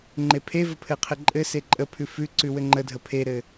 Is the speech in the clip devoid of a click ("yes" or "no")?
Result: no